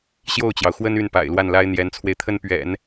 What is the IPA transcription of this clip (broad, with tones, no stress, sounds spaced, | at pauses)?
ɕ j o˥˩ ʊ̯ t͡ɕ j ɑ˩ ʊ̯ x w ə˥ n y˥˩ n p a̰˨˩ ɪ̯ l w a˥˩ n l a˥ ɪ̯ n̪ j ɛ˧˥ n t͡sʰ w e˧ ɪ̯ t̪ʰ ə˥ n p ɥ ɛ̰˨˩˦ n